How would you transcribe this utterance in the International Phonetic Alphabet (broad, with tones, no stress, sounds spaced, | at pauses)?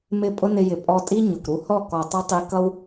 m ɪ˦˨ pʼ ʊ˦ n ɪ˧ j ɪ˨ pʼ ɔ˧ tʼ i˦ ɲ ʊ˨ k ɾ u˧ h ɔ˦˨ k ɔ˨ tˤ ʌ˧ tˤ i˧ k ʌ˧ w